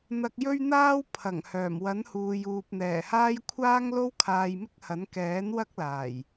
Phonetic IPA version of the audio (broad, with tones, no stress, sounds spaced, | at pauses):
n̪ ɐ˧ k̚ j ɵ˥ ɥ n̪ aː˥ w pʰ ɐ˨˩ ŋ h œː˨˩ m w ɐ˨˥ n h uː˨ j uː˨ p̚ n̪ ɛː˨˩ h aː˥ j kʷʰ aː˥ ŋ l o˥ w kʰ aː˧ j m ɪ˥ k̚ h ɐ˨˥ n k ɛː˨˥ n w ɐ˥ k̚ l aː˨˩ j